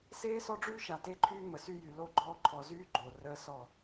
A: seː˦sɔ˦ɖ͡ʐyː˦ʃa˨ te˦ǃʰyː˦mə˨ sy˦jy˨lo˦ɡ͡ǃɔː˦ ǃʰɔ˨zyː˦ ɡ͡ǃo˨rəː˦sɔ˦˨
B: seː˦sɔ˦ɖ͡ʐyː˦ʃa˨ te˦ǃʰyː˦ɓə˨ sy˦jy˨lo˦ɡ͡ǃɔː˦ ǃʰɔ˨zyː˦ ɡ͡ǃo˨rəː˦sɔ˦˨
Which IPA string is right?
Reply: A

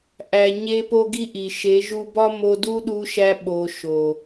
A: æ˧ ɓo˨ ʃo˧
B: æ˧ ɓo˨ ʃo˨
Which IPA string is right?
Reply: B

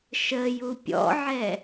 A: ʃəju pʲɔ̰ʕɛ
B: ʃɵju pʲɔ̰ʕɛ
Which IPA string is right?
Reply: A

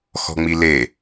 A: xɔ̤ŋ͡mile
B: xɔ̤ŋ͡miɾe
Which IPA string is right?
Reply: A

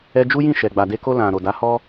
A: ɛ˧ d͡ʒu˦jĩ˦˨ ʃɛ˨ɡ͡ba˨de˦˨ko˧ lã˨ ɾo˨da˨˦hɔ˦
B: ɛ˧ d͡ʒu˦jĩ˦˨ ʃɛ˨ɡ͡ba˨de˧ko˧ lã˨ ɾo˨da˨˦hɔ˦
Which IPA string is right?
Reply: B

